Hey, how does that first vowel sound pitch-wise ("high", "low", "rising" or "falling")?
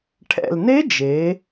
low